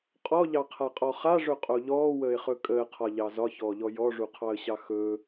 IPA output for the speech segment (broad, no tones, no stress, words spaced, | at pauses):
qʼɔʎɑqʰaqʼɔ χaʐɵqʼo ʎɔːwəːɪ̯χɵ kʼəːqʰɒʎɑ zɒçɔːʎɔ jɔʐuqʰɑə̯ɕɑ xɵː